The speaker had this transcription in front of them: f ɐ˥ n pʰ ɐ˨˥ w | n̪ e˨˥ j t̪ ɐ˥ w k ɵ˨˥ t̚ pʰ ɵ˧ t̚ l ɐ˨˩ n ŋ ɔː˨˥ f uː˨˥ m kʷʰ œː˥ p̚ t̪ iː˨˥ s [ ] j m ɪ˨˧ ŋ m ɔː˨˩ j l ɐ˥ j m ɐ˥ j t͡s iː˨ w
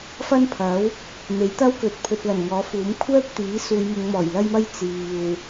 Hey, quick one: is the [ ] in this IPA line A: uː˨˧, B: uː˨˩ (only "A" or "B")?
A